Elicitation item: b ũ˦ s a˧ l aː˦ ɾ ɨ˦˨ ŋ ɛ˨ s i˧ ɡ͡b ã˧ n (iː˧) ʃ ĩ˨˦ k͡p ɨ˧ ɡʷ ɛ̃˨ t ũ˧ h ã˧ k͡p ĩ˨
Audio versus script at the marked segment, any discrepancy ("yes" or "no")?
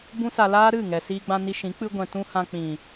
yes